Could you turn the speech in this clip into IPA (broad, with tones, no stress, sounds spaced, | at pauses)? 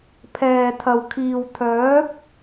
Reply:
pʰ ɛː˨ t̪ʰ ɐ˨ w kʰ iː˨ w t̪ʰ œː˨˥ p̚